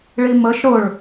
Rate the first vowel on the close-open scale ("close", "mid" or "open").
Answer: close